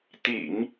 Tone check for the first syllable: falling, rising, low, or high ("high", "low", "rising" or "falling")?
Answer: low